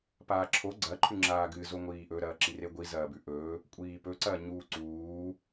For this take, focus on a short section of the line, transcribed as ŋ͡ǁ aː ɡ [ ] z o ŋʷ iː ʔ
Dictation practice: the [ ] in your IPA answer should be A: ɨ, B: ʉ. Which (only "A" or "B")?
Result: A